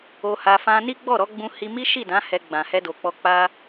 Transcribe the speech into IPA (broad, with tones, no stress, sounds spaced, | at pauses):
o˧ h a˧ f ã˧ n i˦ ɡ͡b ɔ˦˨ ɾ ɔ˨˦ ɡ͡b ũ˧ h i˧ m i˦ ʃ i˦˨ d ã˨˦ h ɛ˧ ɡ͡b ã˨ h ɛ˧ d o˨ k͡p ɔ˧ k͡p a˧